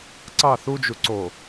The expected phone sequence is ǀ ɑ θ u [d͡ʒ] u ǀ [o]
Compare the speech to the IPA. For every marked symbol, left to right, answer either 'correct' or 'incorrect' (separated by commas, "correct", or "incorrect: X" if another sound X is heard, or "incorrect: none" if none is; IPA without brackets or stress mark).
correct, correct